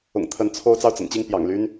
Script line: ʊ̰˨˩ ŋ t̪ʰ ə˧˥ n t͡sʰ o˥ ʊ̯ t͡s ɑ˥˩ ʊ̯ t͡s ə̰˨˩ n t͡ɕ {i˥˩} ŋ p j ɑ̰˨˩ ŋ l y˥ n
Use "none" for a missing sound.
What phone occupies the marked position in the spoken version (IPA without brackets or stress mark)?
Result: i˥˩